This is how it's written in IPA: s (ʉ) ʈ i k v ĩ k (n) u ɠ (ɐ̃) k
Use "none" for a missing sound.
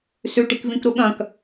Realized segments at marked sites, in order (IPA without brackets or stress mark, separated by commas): ʉ, ɾ, ɐ̃